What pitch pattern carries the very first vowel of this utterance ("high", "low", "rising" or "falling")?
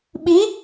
rising